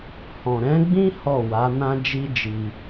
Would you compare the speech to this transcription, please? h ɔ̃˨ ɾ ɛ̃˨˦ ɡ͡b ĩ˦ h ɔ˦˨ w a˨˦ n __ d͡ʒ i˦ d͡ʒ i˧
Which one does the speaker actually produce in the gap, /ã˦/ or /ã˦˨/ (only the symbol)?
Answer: ã˦